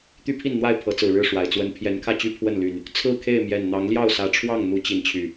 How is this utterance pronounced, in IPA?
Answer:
t̪y˦pʰi˥˨nn̪wa˥˨ɪ̯ pʰɤ˨˦t͡sɹ̩˨˩ɻɻ̩˥˨ ʂwa˨˩ɪ̯t͡swə˦n pʰjɛ˨˦nkʰä˥˨t͡ɕy˥˨ pʰwə˥˨nly˨˩n | t͡sʰɹ̩˥˨kʰe˥˨ɪ̯ mjɛ˨˩nn̪ɑ˨˦ŋljɑ˥˨ʊ̯ sä˨˩ʈ͡ʂʰwɑ˥˨ŋn̪u˨˦ t͡ɕi˨˦nt͡ɕʰy˨˩

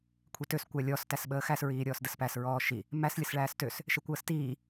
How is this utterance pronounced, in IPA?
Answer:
kʷʰitøs kʷælʲɔs tæsɓəːxæs ɹiːɾʲɔːsdəspæs ɹɔːʃi | mæs lʲəsɭæːstøs | ʃekʷəːstiː

